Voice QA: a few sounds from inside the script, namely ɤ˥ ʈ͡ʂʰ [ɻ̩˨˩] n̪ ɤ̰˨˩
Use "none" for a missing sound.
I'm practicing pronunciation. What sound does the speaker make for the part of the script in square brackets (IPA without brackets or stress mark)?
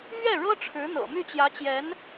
ɻ̩˧˥